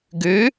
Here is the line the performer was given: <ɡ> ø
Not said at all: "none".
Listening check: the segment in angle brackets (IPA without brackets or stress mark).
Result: ɡ